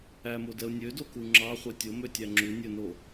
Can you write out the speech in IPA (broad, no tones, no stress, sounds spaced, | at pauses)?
æ m o d ɛ ʊ̯ nʲ ø d o k u ŋ͡ǁ ɑ χʷ ɛ tʲ o m ø tʲ æ ŋ͡ǁ u nʲ ɵ n o